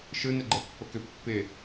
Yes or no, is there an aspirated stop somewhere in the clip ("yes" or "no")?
no